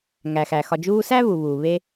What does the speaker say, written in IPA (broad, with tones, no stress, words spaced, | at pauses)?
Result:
ŋæ˩xæ˩ xɒ˨d͡ʒuː˦ sæ˥βu˩βuː˩ βe˦